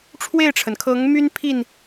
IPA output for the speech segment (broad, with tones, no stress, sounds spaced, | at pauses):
ʈ͡ʂʰ w e˥˨ ɪ̯ ʈ͡ʂʰ ə˩ n kʰ ɤ˨˦ ŋ m y˦ n pʰ i˥˨ n